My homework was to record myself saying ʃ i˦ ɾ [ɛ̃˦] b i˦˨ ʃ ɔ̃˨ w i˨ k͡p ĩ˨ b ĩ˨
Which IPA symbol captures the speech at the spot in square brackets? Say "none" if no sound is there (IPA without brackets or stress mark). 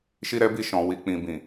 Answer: ɛ˦